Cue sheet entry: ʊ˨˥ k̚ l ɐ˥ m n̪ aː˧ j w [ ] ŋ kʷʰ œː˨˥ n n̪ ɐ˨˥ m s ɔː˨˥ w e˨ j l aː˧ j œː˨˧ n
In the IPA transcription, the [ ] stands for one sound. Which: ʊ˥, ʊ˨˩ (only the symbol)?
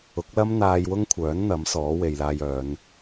ʊ˥